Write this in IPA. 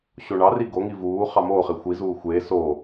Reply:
ɕoɳɑri ɡoŋi vuː χɑmoːχe xʷizuː xʷeː soː

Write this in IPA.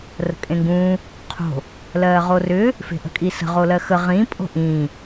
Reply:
rə̤kʼẽŋɡũː | qʰo̤ | lɜːʁorʏː | fe̤ʔə̤kʼisə̤ ʁolɜxə ʁĩ pʼo̤ʔĩː

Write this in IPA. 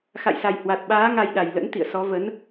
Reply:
xa̰˧˨jsa˨˩j hwa˨˩t̚ɓaː˨˦ ŋa˧jɗa˨˩j lə̰˧˥nt̪ḭ˧˨ə̯sɔ˨˦və˨˦n

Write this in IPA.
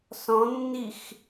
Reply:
sɔ̃nːix

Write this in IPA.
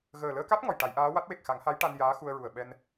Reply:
ɣəː˨˩ləː˧ka˦˥t̚ ŋɔ˨˩jʈa˨˩˦jʔaː˧˥ wa˦˥t̚ we˨˩k̚xa˨˩˦ŋha˧˥jʈa˧n jaː˧˥xu˧ə̯ɹu˨˩ə̯ ɓɛ˧n

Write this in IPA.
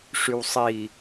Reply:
ʂywsˤi

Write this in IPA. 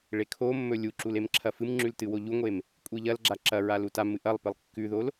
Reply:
ɭekʰomːɵ lʲuǁul emǁʰɐfɨmŋ͡ǁʉl tɨwoʎuŋʷem | kʷʼiʎɐlɡ͡ǁa ǁɐɹal utamɨ ʔɐlˠpɨlˠ kːʉðol

